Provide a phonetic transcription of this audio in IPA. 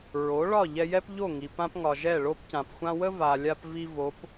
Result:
ɹ o˩˥ ɭ ɒ˥˩ ʎ ɛ˧ j ɛ˥ p ʎ o˥˩ ŋ i˩ p ã˥ p ŋ ɒ˩ ʒ ɛ˥˩ ɭ o˥ p c ã˩ p xʷ ã˥ w ə˥ v a˩ lʲ a˧ p v i˧ v o˩˥ p

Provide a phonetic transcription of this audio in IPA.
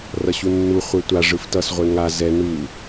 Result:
r ʌ ɕ u nː u χʷ ɛ tʷ a ʐ ɯ f t ʌ s ʁʷ e ŋ a z ɛ n u

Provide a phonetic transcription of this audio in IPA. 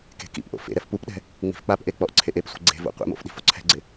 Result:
k e̤ k ḭ p ʔ o̰ f ḛ ɾ ɛ f p u p ɗ ɛ̤ | ŋ͡m i̤ f k͡p a p ʔ e k͡p ɔ ʔ ǀʰ e ʔ e p sʷ e̤ ɡ͡ǀ e̤ v o̰ qʷ ḛ m o̰ f ɗ i̤ f o ǀʰ ɛ̤ ɡ͡ǀ ɪ

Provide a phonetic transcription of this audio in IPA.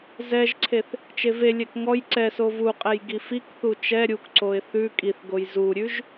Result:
z ɛ ʒ ǀʰ e θ | t͡ʃ e v e lʲ ɛ k ŋ ɔ j ǀ ɛ s o v u qʼ ɛ j ɡ i f i k θ u t͡ʃ ɛ ɾʲ u k ǀ o ɪ̯ θ ʉ kʼ i θ ɡ o j z u ɾʲ ʉ ʒ

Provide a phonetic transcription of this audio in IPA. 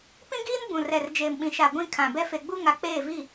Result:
p ĩ˦ ɡ iː˦ n b ũ˨ r ɛ˨ r d͡ʒ eː˨ m ɓ ĩ˨ ʃ a˨ ɡʷ ĩ˦˨ kʰ ã˨ b ɛ˦ f e˨ ɡ͡b u˦ ŋ a˨ k͡p eː˦˨ v i˦˨

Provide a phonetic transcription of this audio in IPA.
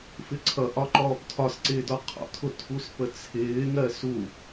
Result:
f ɪ ǀʰ ʌ ʔ ɒ ǃ ɔː p tʰ ɒ s ǀ ɪː d ɔ qʰ ɔ̰ tʰ ʊ tʰ u s p ə t͡sʰ ɪː ŋ ɜ s u

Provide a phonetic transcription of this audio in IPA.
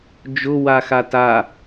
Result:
d͡ʒ ʊ w a x a t a

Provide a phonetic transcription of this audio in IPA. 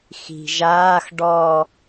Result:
x i̤ ʒ aː x ɖ ɔ

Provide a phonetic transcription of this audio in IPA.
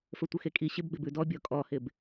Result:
f ə˞ tʷ ɪ x e kʼ i ɕ ɪ b ɡ͡b ɪ b ʉ d ɔ bʲ ɔ kʼ ɔ h ɪ b

